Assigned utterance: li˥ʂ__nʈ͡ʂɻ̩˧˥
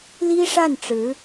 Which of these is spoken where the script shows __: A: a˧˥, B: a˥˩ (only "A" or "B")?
B